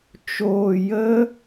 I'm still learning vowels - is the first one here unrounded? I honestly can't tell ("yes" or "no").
no